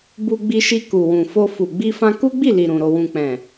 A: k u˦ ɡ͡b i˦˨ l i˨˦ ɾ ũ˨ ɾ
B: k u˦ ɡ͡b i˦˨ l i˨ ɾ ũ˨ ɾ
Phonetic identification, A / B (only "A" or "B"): B